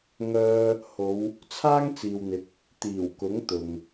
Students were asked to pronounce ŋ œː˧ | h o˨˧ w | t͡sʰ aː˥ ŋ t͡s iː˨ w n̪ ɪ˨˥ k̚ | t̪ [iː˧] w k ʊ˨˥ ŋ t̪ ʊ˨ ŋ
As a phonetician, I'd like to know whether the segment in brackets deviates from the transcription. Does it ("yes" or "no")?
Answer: yes